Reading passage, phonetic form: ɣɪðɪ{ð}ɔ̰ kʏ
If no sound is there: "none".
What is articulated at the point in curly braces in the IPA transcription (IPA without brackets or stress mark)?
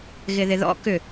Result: ð